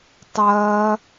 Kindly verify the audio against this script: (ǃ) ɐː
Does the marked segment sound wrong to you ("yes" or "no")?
yes